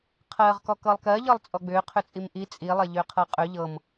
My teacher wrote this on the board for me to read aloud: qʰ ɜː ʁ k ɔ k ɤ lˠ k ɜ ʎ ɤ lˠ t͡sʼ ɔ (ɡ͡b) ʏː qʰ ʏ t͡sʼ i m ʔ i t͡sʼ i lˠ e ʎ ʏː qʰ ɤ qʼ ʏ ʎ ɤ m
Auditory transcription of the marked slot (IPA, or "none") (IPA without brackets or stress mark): ɡ͡b